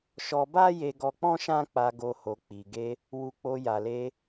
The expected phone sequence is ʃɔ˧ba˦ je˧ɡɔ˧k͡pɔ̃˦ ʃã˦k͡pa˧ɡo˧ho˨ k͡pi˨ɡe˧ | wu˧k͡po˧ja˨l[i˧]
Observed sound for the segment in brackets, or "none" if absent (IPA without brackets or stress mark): e˧